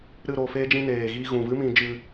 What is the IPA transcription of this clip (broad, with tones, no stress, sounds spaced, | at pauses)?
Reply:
ɾ ɨ˦˨ ɾ o˧ f eː˦ d͡ʒ ĩ˧ n eː˨ ɣ iː˧ ɣ ũ˨ v ɨ˦ m ĩ˧ d͡ʒ ɨ˧